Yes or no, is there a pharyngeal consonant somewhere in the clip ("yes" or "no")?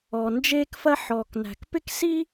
yes